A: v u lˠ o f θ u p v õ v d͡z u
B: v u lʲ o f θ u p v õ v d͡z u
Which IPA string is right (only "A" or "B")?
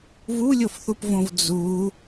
B